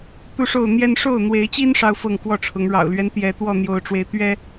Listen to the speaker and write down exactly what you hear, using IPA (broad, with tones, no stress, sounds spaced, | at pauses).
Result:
t̪ u˥˨ ʂ o˥˨ ʊ̯ n̪ j ɛ˦ n ʂ o˥˨ ʊ̯ n̪ w e˨˦ ɪ̯ t͡ɕ i˦ n ʂ ɑ˦ ʊ̯ f ɤ˥˨ ŋ k w ɔ˥˨ ʈ͡ʂʰ ʊ˨˦ ŋ ɻ ɑ̰˨˩ ʊ̯ l ɥ ɛ˦ n t̪ j ɛ˨˦ t̪ w ɔ˥˨ n̪ j o˨˦ ʊ̯ ʈ͡ʂ w e˨˦ ɪ̯ t̪ ɥ ɛ˦